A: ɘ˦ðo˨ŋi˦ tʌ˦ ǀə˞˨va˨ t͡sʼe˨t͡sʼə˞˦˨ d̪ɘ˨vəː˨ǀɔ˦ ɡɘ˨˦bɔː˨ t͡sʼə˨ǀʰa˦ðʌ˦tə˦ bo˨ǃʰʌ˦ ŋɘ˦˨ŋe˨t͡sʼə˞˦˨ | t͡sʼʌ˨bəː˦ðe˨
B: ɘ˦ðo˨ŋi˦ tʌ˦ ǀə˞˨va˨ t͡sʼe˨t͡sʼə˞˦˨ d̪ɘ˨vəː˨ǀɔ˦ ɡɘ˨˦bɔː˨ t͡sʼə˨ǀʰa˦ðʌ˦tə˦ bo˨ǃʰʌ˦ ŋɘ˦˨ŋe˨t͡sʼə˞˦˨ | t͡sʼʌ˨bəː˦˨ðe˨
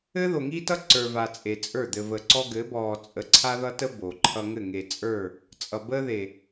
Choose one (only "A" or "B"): A